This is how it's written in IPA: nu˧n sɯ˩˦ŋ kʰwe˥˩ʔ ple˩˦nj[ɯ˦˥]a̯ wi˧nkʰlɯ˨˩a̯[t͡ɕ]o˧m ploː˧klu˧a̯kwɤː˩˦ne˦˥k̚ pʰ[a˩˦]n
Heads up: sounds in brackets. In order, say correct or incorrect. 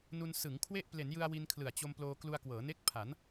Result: incorrect, correct, correct

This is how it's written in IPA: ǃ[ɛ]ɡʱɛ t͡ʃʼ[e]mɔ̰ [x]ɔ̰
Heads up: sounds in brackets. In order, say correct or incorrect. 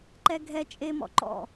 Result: correct, correct, incorrect

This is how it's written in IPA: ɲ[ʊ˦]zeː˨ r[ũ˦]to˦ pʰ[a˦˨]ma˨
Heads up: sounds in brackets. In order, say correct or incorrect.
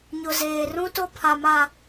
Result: incorrect, correct, incorrect

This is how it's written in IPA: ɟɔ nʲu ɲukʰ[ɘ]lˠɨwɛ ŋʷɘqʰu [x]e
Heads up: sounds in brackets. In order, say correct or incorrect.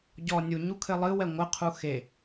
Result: correct, correct

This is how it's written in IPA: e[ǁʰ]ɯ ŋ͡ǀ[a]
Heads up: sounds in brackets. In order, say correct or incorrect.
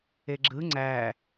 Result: incorrect, incorrect

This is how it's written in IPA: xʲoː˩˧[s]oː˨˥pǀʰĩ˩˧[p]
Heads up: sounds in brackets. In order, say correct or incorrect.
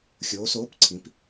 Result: correct, correct

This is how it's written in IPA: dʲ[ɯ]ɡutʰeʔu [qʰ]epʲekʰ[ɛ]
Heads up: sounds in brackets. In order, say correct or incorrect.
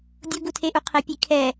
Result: incorrect, correct, correct

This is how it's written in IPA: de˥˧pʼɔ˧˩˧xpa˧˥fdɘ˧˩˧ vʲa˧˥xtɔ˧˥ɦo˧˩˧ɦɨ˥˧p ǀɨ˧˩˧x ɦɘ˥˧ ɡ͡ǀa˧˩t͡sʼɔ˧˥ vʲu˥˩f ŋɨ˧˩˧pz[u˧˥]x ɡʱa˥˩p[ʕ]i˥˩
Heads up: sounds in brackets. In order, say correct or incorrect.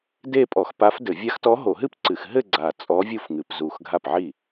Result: incorrect, correct

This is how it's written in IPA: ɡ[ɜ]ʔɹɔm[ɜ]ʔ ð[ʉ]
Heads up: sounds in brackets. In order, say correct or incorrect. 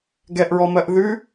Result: incorrect, correct, correct

